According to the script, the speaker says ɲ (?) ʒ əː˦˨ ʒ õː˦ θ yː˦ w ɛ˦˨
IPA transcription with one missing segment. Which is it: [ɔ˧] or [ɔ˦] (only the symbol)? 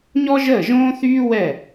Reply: ɔ˦